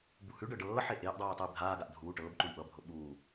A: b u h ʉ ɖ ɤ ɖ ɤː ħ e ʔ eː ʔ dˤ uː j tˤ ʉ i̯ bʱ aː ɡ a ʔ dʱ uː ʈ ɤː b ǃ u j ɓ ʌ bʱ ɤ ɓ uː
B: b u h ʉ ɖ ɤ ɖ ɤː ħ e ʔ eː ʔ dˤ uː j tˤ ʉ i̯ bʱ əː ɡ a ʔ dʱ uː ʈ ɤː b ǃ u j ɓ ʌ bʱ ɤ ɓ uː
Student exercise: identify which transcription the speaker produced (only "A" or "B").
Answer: A